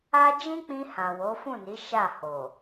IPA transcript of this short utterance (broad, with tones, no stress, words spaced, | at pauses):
a˦ d͡ʒĩ˦k͡pĩ˧hã˨ wo˨˦fũ˦˨ni˨˦ ʃa˦˨ ho˨